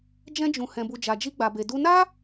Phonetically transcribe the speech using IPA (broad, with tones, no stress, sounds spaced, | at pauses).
d͡ʒ ɛ̃˦ d͡ʒ ũ˧ h ɛ̃˧ b u˧ d͡ʒ a˧ d͡ʒ i˦ ɡ͡b a˧ b e˧ d u˧ n a˦